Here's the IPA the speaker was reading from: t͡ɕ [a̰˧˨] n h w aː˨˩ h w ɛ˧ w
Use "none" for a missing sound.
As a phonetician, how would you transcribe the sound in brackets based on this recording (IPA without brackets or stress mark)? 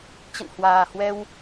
ə̰˧˨